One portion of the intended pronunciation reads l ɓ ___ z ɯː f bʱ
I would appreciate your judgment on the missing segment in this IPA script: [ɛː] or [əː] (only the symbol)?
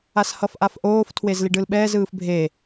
ɛː